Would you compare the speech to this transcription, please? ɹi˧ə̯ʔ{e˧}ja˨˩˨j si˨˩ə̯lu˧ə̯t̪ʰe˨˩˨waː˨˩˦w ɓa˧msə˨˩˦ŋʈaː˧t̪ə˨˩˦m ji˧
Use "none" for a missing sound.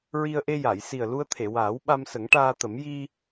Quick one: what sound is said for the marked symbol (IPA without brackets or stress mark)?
e˧